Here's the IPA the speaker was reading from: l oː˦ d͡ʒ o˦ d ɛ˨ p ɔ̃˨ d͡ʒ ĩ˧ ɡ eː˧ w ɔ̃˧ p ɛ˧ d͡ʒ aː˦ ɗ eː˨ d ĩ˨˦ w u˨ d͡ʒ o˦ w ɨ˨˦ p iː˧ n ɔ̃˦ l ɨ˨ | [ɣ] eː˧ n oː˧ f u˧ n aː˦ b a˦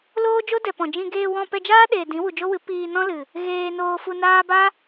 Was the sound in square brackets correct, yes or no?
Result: yes